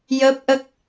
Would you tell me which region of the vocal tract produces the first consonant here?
palate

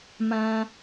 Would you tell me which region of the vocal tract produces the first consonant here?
lips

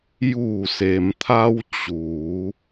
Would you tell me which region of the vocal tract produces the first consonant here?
palate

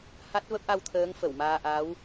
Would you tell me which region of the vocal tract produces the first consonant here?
throat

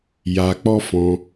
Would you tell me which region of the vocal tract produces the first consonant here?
palate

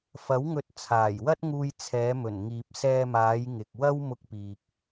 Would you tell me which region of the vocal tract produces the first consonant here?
lips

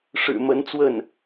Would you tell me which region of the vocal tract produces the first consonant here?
retroflex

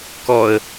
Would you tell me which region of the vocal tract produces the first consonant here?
velum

